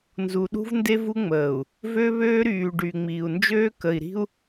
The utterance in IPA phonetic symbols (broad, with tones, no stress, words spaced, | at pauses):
nzu˨ɗṳ˦vnde˦vu˦ ŋ͡məː˨u̯ | vø˦βøː˦ɾyː˨ ɖy˨ ŋ͡miː˨u̯nd͡ʒøː˦ kə˨i̯ɾi̤˦u̯